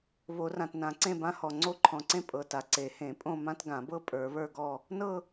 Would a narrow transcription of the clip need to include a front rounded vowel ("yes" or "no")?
no